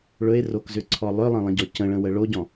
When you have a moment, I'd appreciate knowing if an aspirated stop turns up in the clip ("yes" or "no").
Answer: yes